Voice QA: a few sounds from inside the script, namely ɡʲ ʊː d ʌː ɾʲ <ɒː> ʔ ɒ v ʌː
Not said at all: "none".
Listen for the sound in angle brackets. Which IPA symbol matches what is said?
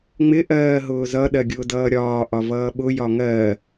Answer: ɒː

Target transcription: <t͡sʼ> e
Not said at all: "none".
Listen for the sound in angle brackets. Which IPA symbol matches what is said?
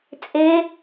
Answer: t͡sʼ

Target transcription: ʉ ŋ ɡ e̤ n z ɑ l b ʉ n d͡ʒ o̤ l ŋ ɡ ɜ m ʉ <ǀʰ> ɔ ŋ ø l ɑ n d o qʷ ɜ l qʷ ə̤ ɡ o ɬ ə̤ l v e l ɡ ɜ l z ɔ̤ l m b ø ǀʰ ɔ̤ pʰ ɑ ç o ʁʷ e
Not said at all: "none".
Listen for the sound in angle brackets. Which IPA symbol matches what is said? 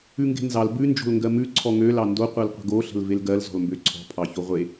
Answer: ǀʰ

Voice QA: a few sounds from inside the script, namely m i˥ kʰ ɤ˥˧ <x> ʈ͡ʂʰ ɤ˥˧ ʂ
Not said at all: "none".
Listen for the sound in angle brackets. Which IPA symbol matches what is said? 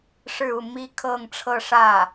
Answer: ŋ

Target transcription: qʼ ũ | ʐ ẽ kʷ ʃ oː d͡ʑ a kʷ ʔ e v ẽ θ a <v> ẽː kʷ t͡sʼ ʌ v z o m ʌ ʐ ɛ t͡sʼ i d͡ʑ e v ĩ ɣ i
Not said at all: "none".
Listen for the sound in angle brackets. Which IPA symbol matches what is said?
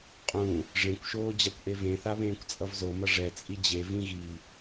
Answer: β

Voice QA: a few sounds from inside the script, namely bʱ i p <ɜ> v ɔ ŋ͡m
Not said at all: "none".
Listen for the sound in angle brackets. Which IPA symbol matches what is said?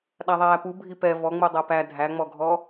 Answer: ɛ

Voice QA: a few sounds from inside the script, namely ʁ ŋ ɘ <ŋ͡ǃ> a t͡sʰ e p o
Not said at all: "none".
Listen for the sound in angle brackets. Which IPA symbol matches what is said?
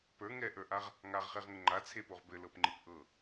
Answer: ŋ͡ǃ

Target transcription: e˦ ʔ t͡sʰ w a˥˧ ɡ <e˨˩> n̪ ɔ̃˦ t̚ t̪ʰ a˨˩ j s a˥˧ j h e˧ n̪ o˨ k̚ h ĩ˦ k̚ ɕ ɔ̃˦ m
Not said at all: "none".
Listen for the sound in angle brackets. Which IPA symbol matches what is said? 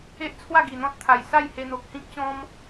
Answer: i˨˩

